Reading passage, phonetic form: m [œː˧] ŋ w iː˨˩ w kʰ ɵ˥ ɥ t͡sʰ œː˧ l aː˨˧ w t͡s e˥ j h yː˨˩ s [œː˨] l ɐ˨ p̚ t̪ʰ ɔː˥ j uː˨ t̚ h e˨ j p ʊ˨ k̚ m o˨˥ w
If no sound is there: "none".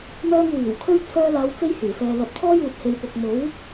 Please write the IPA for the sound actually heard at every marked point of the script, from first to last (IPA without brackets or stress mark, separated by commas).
œː˧, ɛː˨